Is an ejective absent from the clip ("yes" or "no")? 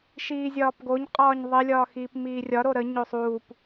no